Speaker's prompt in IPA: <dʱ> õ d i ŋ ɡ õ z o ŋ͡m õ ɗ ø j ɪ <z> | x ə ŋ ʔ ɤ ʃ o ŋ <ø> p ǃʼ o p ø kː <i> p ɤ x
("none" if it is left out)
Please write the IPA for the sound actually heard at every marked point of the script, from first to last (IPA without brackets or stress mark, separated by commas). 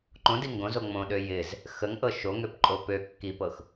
ǃ, z, ø, i